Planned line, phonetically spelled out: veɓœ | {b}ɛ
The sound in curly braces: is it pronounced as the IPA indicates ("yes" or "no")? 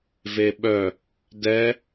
no